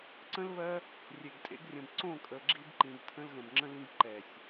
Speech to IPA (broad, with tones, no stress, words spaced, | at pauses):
ǀə̃˦lβɜ˦ | rʲe˨ɡtʼḛ˧ɡrʲə̃˨b ǀõ˦˨kʼə˨ɡ͡ǁi˧b ǃĩ˨btʰə̃˧lɣə̃˨b ŋ͡ǁə̃˦lĩ˦ɡ ǃɛ˨sʲ